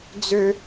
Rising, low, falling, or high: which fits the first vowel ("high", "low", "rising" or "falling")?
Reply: high